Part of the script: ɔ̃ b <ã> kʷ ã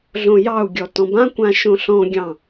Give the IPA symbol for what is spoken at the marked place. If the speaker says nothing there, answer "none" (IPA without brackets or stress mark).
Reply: ã